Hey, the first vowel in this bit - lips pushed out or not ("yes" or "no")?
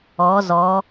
yes